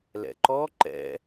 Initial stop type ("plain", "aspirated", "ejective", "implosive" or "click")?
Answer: click